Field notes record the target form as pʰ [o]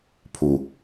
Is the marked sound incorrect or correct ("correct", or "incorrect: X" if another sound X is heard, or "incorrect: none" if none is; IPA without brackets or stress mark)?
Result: incorrect: u